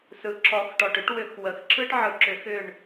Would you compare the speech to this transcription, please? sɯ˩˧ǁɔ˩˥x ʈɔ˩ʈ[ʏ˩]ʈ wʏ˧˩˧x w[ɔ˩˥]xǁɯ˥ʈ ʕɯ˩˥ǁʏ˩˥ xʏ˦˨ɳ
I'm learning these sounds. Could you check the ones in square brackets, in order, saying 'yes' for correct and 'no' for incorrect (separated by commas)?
no, no